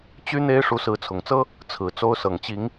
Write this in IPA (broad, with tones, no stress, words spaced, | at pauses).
t͡ɕy˦n̪e˦ɪ̯ ʂu˨˦sɹ̩˨˦t͡sʰʊ˨˩ŋt͡sɤ˦ | t͡sʰɹ̩˨˩ t͡so˦ʊ̯sɤ˨˩ŋt͡ɕi˨˦ŋ